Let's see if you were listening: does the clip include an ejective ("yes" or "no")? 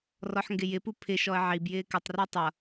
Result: no